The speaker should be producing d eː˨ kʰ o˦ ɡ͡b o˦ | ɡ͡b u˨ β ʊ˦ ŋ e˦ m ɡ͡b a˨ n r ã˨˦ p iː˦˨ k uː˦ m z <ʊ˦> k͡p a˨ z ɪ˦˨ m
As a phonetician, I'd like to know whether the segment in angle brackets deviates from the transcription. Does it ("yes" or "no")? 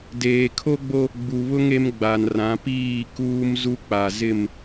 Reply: yes